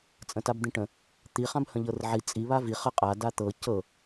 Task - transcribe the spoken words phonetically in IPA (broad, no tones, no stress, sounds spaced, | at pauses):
t͡sʼ ə̃ t a b d̪ ĩ ʈ ə̃ | t̪ i χ ã b h ə̃ ʎ ɤ r ʕ i t͡sʼ i β a v i χ ə qʼ a d a t̪ ɤ c ɤ